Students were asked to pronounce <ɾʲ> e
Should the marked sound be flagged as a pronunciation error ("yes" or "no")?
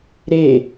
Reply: yes